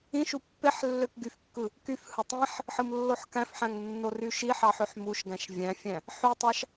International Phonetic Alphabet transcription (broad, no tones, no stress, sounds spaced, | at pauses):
ĩ ʃ u pː e ħ lː ø k ɡ y f kː ɯ | k y f h ɯ tˤ ĩ ħ | ħ ɯ m lː o ħ k æ̃ f ħ æ̃ ŋ nː o r y ʃ i ħ ɑ ħ ø ħ m u ʃ ɡ æ̃ ʃ vʲ æ̃ fʲ æ̃ | ħ y tˤ ɑ ʃ